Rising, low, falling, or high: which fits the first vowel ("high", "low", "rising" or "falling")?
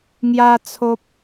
high